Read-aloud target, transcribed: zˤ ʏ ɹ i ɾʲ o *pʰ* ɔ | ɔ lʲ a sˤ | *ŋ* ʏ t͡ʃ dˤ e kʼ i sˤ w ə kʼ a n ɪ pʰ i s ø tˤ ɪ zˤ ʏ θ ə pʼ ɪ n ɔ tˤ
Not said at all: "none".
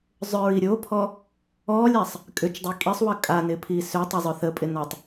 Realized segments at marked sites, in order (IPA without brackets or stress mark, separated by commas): pʰ, kʼ